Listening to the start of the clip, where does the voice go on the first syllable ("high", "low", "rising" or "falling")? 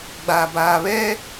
low